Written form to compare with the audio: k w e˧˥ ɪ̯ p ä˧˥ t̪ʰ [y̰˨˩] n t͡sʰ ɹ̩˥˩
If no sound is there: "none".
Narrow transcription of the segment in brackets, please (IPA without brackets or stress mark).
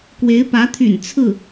y̰˨˩